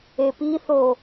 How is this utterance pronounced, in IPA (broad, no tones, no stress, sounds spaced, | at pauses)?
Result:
e p i θ o